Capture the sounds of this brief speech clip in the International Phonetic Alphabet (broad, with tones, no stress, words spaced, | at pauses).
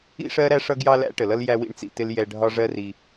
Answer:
ḭ˥ʂɜ˥ɾæ˥ ʂʌ˥ɡjɑ˥læ̰˥ ʈə˩lʌ˥l jæ˥wḭ˥ɳt͡sḭ˧tɪ˥l jɛ˧ ɖʱɒ˥ʐɜ˥ri˧